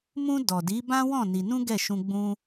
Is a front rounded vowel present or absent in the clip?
absent